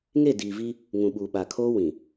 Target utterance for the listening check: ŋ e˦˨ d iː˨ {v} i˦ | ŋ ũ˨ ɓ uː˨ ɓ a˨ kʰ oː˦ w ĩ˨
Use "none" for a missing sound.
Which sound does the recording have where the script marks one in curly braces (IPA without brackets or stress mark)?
v